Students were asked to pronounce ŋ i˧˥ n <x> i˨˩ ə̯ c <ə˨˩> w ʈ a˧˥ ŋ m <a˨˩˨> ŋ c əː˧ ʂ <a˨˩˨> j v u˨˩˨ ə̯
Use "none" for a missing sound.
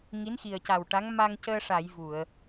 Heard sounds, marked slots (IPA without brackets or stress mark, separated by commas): x, a˨˩, a˧, a˨˩˨